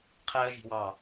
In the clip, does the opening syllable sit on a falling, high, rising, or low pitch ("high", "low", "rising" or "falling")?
high